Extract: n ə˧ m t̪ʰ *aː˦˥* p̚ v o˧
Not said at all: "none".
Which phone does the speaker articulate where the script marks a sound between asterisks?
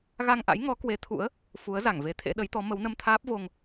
aː˦˥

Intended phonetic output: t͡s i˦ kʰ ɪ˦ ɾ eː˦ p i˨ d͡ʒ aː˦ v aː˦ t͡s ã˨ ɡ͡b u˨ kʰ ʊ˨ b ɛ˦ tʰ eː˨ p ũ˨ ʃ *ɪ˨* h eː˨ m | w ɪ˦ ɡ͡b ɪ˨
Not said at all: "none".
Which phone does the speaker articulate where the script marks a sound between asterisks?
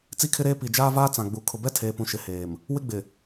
ɪ˨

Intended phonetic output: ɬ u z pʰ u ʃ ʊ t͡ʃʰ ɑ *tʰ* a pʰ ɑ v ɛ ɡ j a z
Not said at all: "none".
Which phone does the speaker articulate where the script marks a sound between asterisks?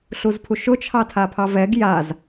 tʰ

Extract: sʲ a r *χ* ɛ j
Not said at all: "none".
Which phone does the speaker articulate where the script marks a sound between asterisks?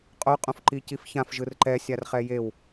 χ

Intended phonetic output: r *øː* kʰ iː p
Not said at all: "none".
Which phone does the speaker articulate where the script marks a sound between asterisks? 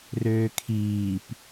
øː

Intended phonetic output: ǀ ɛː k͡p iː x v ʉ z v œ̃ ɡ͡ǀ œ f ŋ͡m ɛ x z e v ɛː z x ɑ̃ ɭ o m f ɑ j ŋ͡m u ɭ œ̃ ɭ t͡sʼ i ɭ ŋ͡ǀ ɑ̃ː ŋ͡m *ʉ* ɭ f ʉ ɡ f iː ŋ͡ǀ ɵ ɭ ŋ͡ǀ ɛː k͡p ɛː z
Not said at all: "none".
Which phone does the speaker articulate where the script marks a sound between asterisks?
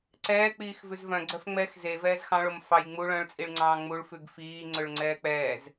u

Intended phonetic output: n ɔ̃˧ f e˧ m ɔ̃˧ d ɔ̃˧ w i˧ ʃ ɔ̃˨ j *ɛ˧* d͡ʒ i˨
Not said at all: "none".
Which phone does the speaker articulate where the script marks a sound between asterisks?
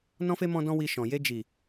e˧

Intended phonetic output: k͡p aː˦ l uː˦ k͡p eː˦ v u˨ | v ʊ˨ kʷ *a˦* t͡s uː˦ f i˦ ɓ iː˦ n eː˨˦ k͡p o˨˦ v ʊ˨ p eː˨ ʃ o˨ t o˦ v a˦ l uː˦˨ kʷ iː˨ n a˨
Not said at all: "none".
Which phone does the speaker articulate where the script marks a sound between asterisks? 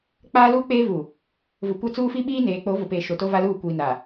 a˦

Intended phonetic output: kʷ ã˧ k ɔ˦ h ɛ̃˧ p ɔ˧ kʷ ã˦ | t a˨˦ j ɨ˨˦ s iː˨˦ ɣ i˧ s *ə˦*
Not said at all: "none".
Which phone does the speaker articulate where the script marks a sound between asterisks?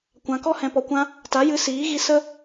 ə˦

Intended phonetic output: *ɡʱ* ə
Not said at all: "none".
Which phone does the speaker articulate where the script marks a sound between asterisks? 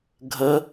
ɡʱ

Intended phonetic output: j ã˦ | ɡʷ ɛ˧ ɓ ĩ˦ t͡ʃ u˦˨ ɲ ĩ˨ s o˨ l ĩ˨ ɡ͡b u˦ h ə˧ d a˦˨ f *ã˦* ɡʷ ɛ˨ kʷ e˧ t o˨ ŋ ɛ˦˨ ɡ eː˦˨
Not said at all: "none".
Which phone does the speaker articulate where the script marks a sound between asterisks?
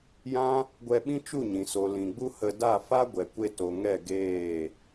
a˦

